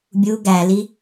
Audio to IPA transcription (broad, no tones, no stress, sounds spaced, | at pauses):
bʲ u ɡ æ l i